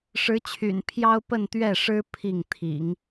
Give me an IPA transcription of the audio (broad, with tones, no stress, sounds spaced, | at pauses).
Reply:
ʂ ɻ̩˧˥ t͡ɕʰ y̰˨˩ n pʰ j ɑ˥ ʊ̯ p ə˥˧ n t̪ ɥ ɛ˥˩ ʂ ɻ̩˥ pʰ i˥˩ ŋ t̪ʰ ḭ˨˩˦ ŋ